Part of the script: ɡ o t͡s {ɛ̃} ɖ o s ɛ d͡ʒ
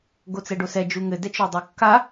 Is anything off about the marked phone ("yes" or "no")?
yes